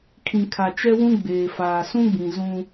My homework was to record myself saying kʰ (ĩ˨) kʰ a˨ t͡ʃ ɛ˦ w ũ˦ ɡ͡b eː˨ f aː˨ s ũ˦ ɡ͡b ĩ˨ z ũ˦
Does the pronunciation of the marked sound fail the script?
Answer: no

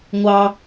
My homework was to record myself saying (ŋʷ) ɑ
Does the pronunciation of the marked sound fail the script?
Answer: no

